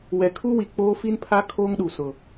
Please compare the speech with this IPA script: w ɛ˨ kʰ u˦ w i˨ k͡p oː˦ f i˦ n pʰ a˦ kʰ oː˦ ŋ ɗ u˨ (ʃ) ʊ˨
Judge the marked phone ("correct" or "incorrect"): incorrect